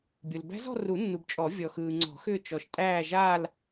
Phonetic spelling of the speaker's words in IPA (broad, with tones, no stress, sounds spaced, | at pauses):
bʲ o˨ l b æ̤˦˥ z ɔ̤˥˧ r u˨˩˦ nː u˨ b t͡ʃʼ ɔ˨˩˦ vʲ ɔ˨ x ɯː˨ ŋ͡ǀ ɔ̤˨˩˦ x ʏː˥˧ t͡ʃ ɔ˨ ʃ tʼ æː˥˧ ʒ aː˥˧ l